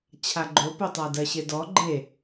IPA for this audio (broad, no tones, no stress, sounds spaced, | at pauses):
t͡ɕʰ a ɡ͡ǃ o p o tˤ a d ɜ ɕ e d ɔ ɡ͡ǃ e